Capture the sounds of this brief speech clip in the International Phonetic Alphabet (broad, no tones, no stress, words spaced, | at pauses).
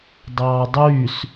dˤɑːdˤyːs